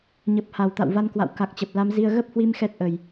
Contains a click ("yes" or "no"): no